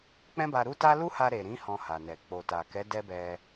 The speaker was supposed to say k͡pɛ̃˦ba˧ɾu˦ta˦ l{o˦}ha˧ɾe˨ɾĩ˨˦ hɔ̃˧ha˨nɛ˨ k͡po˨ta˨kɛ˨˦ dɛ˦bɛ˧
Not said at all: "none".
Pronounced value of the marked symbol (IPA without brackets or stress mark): u˦